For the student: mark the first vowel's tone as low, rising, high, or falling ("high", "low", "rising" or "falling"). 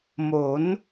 rising